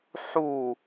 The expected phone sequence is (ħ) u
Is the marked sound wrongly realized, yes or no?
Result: no